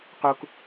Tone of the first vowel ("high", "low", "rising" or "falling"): high